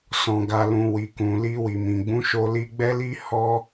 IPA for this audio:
s ɔ̃˨ ɡ a˨ l ũ˨ w i˨ k ũ˨ l i˧ w i˨ m ĩ˨ ɡ͡b ũ˨˦ ʃ o˧ l i˧ ɡ͡b ɛ˦ l i˦ h ɔ˦

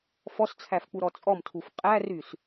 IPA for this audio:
f ɔ s t͡sʰ æ f k͡p u ɾ ɔ t͡sʼ ɔ m tʰ u f qʼ æ r y s

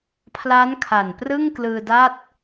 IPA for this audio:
pʰ l a˦˥ n kʰ a˨˩ n p r ɯ˥˩ ŋ k l ɯː˧ d a˥˩ t̚

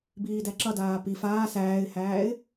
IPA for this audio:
b iː d æ ǁ ʌ d aː p i f aː s æː ɪ̯ h æː ɪ̯

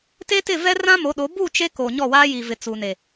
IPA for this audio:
t e˦ t ɪ˦˨ v ɛ˦ r ã˦ m o˨˦ ɗ o˨˦ b u˦˨ t͡ʃ e˦ k o˨ ɲ ɔ˦˨ w aː˦ j i˨ v ɪ˨ t͡s u˨ n e˨

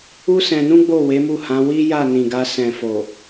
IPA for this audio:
u˦ s ɛ̃˧ n ũ˦ ɡ͡b o˦˨ w e˨˦ m u˦˨ h ã˨˦ w i˦ j a˦˨ n ĩ˨ ɡ a˧ s ɛ̃˨ f o˨

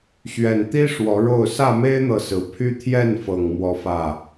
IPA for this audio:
ɕ ɥ ɛ˨˩ n t̪ i˦ ʂ w ɔ˨˦ ɻ o˥˨ ʊ̯ s ä˥˨ m e˦ ɪ̯ n̪ ɤ˨ s ɹ̩˨˩ pʰ y˦ t̪ʰ j ɛ˥˨ n f ɤ˨˩ ŋ m w ɔ˦ f ä˥˨

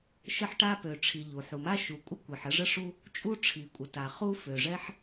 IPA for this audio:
ʃ ə˥ ħ ʈ a˥ p ø˩ ʈ͡ʂʰ i˩ ʎ u˩ ħ u˩ m a˥ ʃ u˩ kʷʼ ə˥ kʷ i˩ ħ ə˥ ʐ ə˥ ʂ u˥ | t͡ʃʼ u˥ ʈ͡ʂʰ i˩ kʷʼ ə˩ t a˩ χ u˥ f ø˩ ʐ ɛ˥ ħ

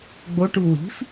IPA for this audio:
ɡ͡b o ʈ u w i̤ f

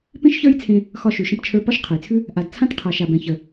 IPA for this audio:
p ẽ˥ ʃ ç ə˞˥ j t͡sʰ ẽ˧ | x ɒ˧ ʃ ʉ˩ ʃ ə̃˧ p t͡ʃʰ ə˞˧ p ɒ˥ ʃ qʰ ə˩ j t͡sʰ ʉ˥ | ʔ a˩ d t͡sʰ ã˥ t qʰ a˩ ʃ a˩ b ɛ̃˩ ç ə˩

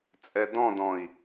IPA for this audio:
t͡sʼ ɛ d ɔ̃ d ɔ̃ i̯

